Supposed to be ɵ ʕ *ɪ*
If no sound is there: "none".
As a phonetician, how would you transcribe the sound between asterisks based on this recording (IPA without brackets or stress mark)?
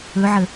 ə